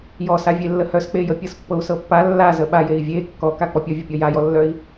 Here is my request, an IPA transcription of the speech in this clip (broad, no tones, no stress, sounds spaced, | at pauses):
j ɔ s a vʲ e lː ə h œ s k͡p e j ə pʲ ɤ s pː ɤ u̯ s ɤ pː a lː a z ə ɓ a j e i̯ vʲ e kː ɔ k a k͡p ɔ pʲ ɔ vʲ ə pʲ ɔ j a j ɔ lː œ i̯